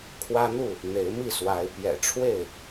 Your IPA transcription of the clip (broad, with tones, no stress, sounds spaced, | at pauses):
kʰ w ä˦ n̪ u˥˨ | n̪ e˨˦ ɪ̯ m i˥˨ s w a˨˦ ɪ̯ p j ɛ̰˨˩ ʈ͡ʂʰ w e˥˨ ɪ̯